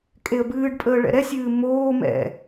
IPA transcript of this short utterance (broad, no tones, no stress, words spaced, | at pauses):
kʼeə̯bɨːɖpʼəː ɭɛ̰ɾɛsʲɨː moː mɛ̰